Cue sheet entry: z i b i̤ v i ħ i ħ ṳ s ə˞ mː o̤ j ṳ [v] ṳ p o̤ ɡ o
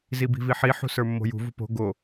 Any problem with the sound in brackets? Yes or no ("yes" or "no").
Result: no